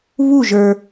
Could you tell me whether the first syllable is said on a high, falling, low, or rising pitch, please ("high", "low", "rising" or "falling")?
falling